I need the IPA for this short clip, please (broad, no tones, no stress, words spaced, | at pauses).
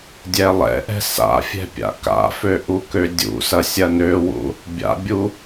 dʲɛlˠɛ̰ʔɛ̤ sa̰fʲɛ̤ pʲa̰ka̰fø ʔukødʲṵsɐ sʲɐnøwṵ | bʲa̰bʲu